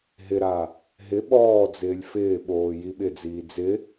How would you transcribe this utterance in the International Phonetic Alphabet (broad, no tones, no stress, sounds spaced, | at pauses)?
ɦ ɪ ɾ a | ɦ ɪ ɓ ɔː d͡z ɪː lʲ f ɪː ɓ oː j i ɓ ɪ d͡z iː d͡z ɪ